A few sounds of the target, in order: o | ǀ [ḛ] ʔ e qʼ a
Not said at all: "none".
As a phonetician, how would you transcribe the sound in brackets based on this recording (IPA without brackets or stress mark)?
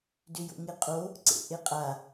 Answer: ḛ